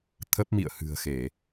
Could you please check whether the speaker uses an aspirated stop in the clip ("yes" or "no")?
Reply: yes